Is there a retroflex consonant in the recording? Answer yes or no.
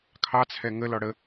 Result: yes